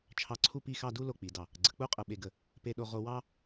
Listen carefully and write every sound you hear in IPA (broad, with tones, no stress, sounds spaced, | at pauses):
t͡ʃʰ ɑ˧ ǀʰ u˥˧ p i˥˧ x ɑ˥˧ d u˥ l o˧ k͡p i˩˧ d ɑ˧˩ | ɡ͡ǀ ə˩˧ k͡p u˥ qʼ ə˧˩ ɓ e˧˩ ɡ ə˧˩ | p e˧ ɗ o˧ ʁ o˧ w ɑ˥